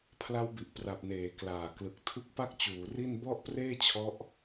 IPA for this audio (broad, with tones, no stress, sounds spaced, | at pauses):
pʰ l a˦˥ w b i˨˩ ʔ p r a˨˩ p̚ n eː˩˦ k l aː˨˩ k l ɯ˨˩ k̚ tʰ ɯ˥˩ k̚ p a˥˩ k̚ t͡ɕ uː˩˦ r i˥˩ n b ɔ˥˩ ʔ p r eː˥˩ t͡ɕʰ ɔ˦˥ ʔ